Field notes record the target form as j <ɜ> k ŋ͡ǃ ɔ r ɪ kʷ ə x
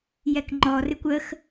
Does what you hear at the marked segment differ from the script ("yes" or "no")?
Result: yes